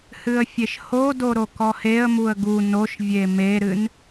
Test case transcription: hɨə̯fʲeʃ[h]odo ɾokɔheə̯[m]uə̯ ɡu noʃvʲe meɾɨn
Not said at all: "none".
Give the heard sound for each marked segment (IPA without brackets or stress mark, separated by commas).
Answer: h, m